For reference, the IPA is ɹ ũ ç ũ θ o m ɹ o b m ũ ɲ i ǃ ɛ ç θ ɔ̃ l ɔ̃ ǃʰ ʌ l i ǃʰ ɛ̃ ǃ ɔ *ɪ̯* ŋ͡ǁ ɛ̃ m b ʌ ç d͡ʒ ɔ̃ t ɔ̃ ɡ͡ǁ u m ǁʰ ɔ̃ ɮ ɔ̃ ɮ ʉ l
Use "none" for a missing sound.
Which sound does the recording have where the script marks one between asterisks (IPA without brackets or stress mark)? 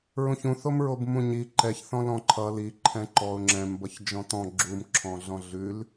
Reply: ʊ̯